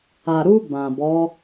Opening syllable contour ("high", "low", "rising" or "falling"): low